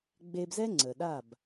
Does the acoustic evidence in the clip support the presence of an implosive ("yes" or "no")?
yes